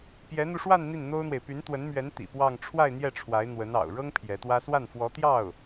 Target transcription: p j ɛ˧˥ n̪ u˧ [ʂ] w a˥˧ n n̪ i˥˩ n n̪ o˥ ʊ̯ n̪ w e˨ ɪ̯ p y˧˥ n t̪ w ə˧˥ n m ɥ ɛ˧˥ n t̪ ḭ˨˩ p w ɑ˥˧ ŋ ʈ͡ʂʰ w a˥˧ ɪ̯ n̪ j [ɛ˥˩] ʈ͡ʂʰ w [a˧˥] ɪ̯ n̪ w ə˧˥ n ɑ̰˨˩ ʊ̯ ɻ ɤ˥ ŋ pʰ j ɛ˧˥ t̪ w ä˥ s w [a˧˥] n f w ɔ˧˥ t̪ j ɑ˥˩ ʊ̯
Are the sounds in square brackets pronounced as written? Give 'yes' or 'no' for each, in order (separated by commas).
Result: yes, yes, yes, no